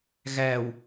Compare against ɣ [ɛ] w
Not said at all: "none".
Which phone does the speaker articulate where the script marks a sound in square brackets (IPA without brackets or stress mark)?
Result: æ